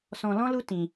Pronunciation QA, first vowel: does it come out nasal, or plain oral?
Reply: nasal